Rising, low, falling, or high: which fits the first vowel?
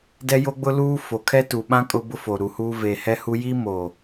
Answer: high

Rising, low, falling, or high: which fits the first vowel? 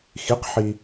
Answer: rising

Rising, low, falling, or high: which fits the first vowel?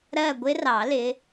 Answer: falling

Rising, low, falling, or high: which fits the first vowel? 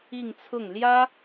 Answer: falling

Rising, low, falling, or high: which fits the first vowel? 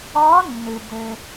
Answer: rising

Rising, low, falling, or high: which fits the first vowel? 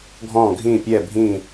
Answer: falling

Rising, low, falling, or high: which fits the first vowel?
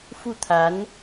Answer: falling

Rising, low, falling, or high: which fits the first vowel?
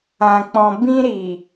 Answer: low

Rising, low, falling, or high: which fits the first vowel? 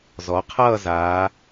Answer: rising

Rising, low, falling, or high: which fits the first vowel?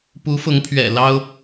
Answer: rising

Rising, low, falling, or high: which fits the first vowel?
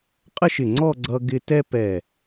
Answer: falling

